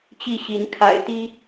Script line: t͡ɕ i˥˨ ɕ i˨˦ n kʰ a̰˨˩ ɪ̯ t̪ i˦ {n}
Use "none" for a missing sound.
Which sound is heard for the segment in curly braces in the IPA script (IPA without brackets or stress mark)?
none